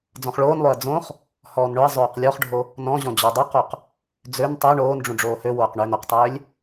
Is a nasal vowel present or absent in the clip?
present